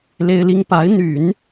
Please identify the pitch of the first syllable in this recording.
high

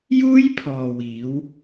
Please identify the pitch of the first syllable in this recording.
high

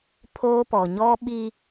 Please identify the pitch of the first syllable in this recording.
high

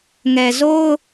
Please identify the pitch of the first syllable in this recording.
low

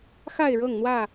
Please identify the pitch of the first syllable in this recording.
falling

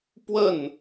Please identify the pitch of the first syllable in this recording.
falling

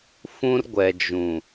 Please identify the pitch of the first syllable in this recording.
high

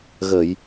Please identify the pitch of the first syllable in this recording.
low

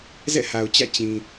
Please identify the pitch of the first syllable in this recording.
falling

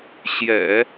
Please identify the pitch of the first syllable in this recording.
low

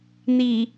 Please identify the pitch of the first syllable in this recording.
low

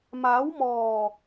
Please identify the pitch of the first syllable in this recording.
rising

